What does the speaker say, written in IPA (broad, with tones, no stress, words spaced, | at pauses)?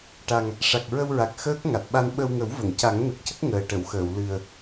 ʈa˨˩ŋ | ʂa˨˩k̚ ɹə˧wɹa˨˩k̚ xəː˦˥k̚ ŋa˨˩t̚ɓa˧n ɓə˧wŋə˨˩˦wvə˨˩˨ŋ ca˨˩˦ŋnə˨˩k̚ cə˦˥k̚ ŋəː˨˩ʈə˨˩˨wxəː˨˩˨w lɨ˨˩ə̯